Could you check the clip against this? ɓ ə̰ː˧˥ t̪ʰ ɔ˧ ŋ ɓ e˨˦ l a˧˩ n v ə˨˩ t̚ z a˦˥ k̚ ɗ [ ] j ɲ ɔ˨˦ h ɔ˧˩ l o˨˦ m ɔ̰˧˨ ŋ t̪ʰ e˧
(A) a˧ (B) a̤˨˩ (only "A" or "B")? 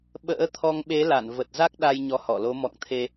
A